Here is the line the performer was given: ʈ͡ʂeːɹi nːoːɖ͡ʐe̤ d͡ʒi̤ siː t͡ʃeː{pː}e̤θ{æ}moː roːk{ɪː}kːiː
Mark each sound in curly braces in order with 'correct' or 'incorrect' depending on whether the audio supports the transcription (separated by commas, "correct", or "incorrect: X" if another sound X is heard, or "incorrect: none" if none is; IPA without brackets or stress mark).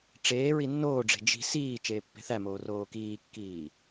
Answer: correct, correct, incorrect: iː